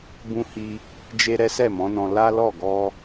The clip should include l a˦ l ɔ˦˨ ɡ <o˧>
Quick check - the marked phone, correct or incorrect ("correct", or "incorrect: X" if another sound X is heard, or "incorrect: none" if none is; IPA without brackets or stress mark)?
incorrect: ɔ˧